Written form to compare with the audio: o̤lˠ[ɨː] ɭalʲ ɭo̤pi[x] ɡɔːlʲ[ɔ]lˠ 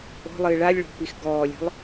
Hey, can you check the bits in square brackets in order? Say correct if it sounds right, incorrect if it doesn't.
correct, correct, incorrect

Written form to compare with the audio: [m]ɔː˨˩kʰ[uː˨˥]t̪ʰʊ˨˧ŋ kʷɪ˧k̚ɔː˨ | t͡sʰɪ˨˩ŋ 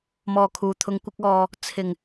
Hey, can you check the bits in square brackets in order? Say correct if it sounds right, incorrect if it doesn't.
correct, incorrect

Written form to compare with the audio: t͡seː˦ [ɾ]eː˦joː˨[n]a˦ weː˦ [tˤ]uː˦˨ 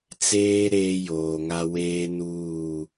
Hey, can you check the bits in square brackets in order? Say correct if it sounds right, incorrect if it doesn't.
correct, incorrect, incorrect

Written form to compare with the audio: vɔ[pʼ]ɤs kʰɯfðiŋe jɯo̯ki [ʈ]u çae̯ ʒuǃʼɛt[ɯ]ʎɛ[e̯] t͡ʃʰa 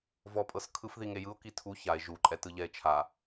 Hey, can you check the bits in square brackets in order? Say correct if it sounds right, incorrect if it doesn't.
correct, incorrect, correct, correct

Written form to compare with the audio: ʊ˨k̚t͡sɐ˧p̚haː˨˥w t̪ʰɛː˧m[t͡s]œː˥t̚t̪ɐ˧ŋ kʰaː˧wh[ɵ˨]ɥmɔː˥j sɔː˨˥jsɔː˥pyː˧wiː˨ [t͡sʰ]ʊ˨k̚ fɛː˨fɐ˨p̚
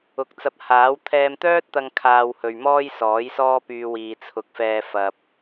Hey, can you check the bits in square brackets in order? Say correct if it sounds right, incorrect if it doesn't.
incorrect, correct, correct

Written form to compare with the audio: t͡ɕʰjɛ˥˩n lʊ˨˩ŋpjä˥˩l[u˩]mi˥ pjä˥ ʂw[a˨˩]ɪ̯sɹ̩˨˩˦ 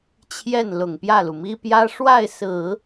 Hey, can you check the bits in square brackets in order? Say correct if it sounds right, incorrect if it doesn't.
correct, incorrect

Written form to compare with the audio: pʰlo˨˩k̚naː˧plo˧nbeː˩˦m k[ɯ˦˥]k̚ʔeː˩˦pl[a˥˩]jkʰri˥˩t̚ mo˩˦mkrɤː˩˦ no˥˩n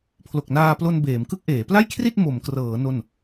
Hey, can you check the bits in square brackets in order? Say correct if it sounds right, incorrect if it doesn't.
correct, correct

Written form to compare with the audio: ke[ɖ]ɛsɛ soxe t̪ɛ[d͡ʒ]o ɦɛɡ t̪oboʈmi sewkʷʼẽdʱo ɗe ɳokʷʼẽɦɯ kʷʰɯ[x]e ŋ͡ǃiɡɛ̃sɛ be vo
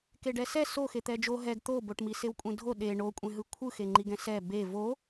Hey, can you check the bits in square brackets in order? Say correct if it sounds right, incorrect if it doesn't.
correct, correct, correct

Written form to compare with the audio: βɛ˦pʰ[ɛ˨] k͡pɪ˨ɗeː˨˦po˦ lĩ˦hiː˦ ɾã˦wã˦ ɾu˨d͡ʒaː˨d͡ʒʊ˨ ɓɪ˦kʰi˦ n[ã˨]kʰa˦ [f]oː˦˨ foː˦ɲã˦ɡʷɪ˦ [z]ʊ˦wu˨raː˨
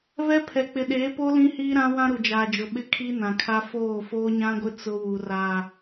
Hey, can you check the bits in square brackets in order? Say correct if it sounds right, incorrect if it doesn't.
correct, correct, correct, incorrect

